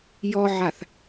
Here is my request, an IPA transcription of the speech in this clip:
j ɔ ʕ a θ

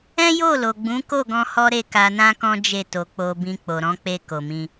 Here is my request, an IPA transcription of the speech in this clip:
ɛ̃˦ j o˦˨ l o˨ ɡ͡b ũ˨˦ k o˦˨ ɡ ɔ̃˧ h ɔ˦ ɾ e˦˨ k a˧ n ã˦ k ɔ̃˦ d͡ʒ e˦˨ t o˨ k͡p o˨ b ĩ˧ k͡p o˨ ɾ ɔ̃˨˦ k͡p e˧ k o˨ m ĩ˧

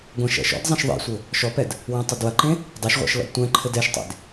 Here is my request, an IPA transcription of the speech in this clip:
ɡʷ ɐ̃ ʃ ɛ̰ ʃ ɔ̰ d zˤ ɐ̃ ʃ ðˤ ḛ sʷ ɘ | ʃ ɔ p ɛ d | w ɛ̃ tˤ ɐ d w ɐ ǃ ẽ | dˤ ɐ ʃ ʁʷ ɛ̰ ʃ l ɔ̰ d tʷ ɛ̃ ǃʰ ɘ d ɛ ʃ tˤ ḛ d

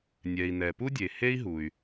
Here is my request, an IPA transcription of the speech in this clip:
nʲ ɛ˩ i̯ n ɛ˩ p u˥ dʲ e˩ h e˥ i̯ ɦ u˩ y̯

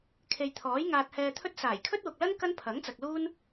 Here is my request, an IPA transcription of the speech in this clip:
kʰ e˨ j t̪ʰ ɔː˨˥ j ŋ aː˧ t̚ h ɛː˧ t̪ʰ ɵ˥ t̚ s aː˨˩ j kʰ ɵ˥ t̚ w ʊ˨ k̚ l ɐ˥ n k ɐ˥ n pʰ ɐ˨˥ ŋ t͡s ɐ˨ k̚ l uː˥ n

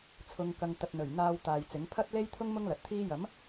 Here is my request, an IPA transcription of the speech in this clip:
t͡sʰ ʊ˨ ŋ k ɐ˨ ŋ t̪ ɐ˨ t̚ n̪ ɵ˨˩ ɥ n̪ aː˧ w t̪ aː˨ j t͡s ɪ˨˥ ŋ pʰ ɐ˥ t̚ l e˥ j t̪ʰ ʊ˥ ŋ m ʊ˥ ŋ l ɐ˨ t̚ t̪ʰ iː˥ j ɐ˨˥ m

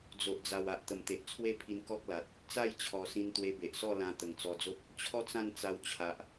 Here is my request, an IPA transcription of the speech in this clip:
d͡z o˨ ʔ d͡z a˨˩ w a˨ ʔ t̪ ə˨˩ m t̪ e˨ ʔ t͡sʰ w e˥˧ pʰ i˧ n k ɔ˦ k̚ l a˨ t̚ | t͡s a˥˧ j t͡ɕʰ ɔ˨˩ s ĩ˧ n t̪ w e˧ b e˨ ʔ s ɔ˥˧ l ã˧ t̪ ə˨˩ ŋ t͡s ɔ˧ d͡z o˦ p̚ | t͡ɕʰ ɔ˦ t͡s ã˥˧ n t͡s a˧ w t͡ɕʰ a˨ ʔ

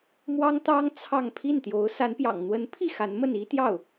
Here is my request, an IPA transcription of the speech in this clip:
m w ɑ˥ ŋ t̪ ɑ˥ ŋ t͡sʰ ɑ˥˧ ŋ pʰ i˥˩ n t̪ j o˧˥ ʊ̯ s a˧˥ n p j ɑ̰˨˩ ŋ n̪ w ə˧˥ n pʰ i˥˩ x a˧˥ n m ə˥˩ n i˥ t̪ j ɑ˥˩ ʊ̯

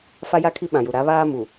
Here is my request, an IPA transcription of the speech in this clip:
f a˦ j a˦ kʰ i˦ ɓ ã˨ j u˨ ɾ a˨˦ β aː˦ m u˨

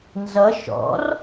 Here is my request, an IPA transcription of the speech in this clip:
n z ʌ ʃ ɔ̰ r

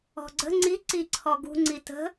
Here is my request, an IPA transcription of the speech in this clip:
ɔ̤ ɡ͡ǀ ə̤ ŋ͡ǀ i ǀ i ǀʰ ɔ ɡ ṳ ŋ͡ǀ i t ə̤

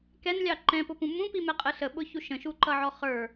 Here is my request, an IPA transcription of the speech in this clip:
k ɛ n lʲ ɑ ǃ ɛ̃ p ʊ p ũ m ũ p i m ɛ qʼ ə ɬ ə ɓ ʊ ç u ʃ ə̃ ʃ u ǃ ʌ ʕ ɔ χ ə˞

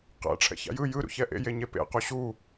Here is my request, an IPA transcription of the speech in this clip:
q ɛ̰ ʈ͡ʂʰ ɛ̰ ç a̰ j ɯ j ɯ ɾ ṵ ç ɛ ʔ ḛ j e ɲ e p ḛ q u ɕ u

